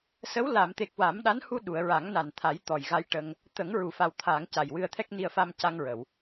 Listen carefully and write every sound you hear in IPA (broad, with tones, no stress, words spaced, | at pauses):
sə˧˥w la˨˩˨mt̪e˨˩k̚ wa˨˩˦mɗa˧˥nhu˧ ɗu˨˩˨ə̯ɹa˨˩˦ŋna˨˩nt̪ʰa˨˩˦j t̪ɔ˨˩jɣa˧jʈə˧ŋ | t̪ə˨˩˦ŋ ɹu˨˩˨fa˨˩w t̪ʰa˨˩˨ŋ ca˨˩jwɨ˧ə̯t̪ʰɛ˦˥k̚ ni˨˩ə̯ fa˧mca˧ŋɹə˨˩˨w